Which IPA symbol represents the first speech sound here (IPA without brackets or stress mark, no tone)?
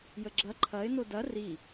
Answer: j